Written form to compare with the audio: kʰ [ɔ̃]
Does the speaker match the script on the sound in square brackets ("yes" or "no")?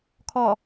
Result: no